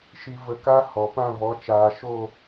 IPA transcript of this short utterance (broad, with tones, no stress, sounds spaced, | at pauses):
ʃ i˧ v ə˧ k a˦ h ɔ˨ p ã˦˨ v ɔ˨˦ t͡ʃ aː˨ ʃ o˦˨